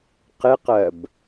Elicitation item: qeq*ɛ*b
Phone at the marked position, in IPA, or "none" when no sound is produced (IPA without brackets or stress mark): ɜ